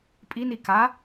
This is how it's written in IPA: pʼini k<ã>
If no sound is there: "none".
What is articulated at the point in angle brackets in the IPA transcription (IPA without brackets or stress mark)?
a